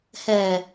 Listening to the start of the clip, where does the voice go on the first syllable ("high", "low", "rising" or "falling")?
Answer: low